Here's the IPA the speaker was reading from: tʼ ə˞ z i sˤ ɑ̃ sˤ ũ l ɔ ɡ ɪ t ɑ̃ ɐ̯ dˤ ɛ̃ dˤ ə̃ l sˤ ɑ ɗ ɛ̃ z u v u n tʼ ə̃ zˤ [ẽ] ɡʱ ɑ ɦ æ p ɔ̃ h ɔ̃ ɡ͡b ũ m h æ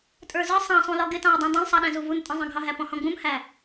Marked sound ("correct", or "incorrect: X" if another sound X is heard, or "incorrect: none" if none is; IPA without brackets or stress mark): incorrect: ɛ̃